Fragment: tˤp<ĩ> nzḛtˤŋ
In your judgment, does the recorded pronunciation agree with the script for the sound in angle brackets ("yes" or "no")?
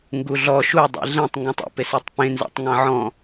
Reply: no